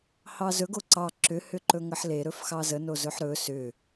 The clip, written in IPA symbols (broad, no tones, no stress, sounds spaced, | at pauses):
h ɑ z ɵ ɡ o ǀ ɑ ǁ ʏ h ʏ ǃ ɵ ŋ ə ħ l e ɾ ɵ f x ɑ z ə n o z ɵ ħ ɾ ɵ s ʏ